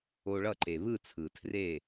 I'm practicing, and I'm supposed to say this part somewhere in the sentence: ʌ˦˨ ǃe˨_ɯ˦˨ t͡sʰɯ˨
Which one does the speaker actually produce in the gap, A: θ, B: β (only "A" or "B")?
B